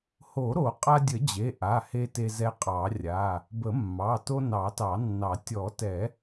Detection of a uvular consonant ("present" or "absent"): present